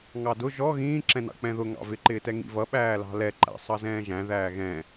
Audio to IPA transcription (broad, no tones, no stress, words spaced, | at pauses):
ŋɑdʊ ʒɔ ɣĩːǁɛ̃nɑ̰ k͡pɛ̃ðʊŋɑ̰ vɪǃɪːtɛ ŋḭvʌ ɓæːlɑ̤lɛǃæ̰ sˤʌzɛ̃ːʒæ̃ ðæːɣɛ̃